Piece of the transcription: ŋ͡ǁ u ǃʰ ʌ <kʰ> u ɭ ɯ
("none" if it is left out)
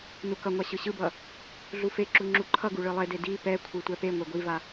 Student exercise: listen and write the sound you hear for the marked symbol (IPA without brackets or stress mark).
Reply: ɡ